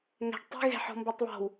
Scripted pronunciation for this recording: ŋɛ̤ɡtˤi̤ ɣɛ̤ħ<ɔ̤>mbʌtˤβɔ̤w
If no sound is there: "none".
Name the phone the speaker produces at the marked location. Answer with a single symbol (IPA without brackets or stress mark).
ɔ̤